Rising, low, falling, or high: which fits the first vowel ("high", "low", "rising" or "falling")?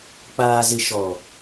low